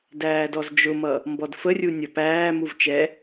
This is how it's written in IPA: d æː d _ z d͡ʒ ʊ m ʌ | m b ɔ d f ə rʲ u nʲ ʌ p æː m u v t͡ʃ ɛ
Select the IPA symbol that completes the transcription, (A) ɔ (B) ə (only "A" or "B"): A